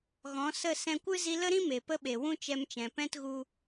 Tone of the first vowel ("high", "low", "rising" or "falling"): rising